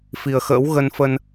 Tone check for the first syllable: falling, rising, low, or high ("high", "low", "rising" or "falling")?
low